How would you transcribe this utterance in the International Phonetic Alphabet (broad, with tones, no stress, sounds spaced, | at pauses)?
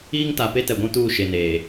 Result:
iː˦ ŋ t a˨ p e˦ t ɛ˨ ɡʷ ũ˦ t uː˦˨ ʃ e˨ n eː˨